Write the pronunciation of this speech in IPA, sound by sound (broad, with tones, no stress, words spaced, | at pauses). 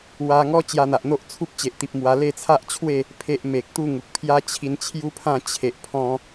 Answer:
wa˧ŋɔ˦ t͡ɕja˧n̪a˨ʔn̪o˦ʔ t͡sʰu˦p̚t͡ɕe˨ʔt̪i˨p̚ mwa˧ le˥˧t͡sʰa˦ʔt͡ɕʰwe˥˧ | pʰe˦ʔme˨k̚ t̪u˥˧ŋu˨k̚pʰja˦ t͡ɕʰi˧nt͡ɕʰju˦pʰã˥˧ t͡ɕʰe˨ʔpʰɔ̃˧